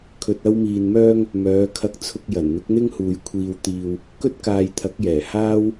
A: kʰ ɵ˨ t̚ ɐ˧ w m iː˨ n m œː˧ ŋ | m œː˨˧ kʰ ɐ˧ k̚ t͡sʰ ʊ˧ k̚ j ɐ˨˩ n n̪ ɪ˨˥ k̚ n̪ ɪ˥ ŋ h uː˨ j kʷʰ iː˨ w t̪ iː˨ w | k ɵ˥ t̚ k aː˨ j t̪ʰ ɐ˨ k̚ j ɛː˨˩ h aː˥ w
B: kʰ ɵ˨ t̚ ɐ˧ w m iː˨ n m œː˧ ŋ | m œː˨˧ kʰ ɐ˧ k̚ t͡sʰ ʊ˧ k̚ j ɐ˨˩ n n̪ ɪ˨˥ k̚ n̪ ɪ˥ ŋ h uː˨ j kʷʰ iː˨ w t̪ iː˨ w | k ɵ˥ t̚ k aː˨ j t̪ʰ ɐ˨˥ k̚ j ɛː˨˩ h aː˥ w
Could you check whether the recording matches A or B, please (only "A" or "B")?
B